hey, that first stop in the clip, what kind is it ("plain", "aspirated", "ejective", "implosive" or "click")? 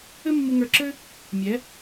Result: click